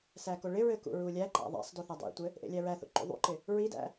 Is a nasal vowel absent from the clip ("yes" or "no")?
yes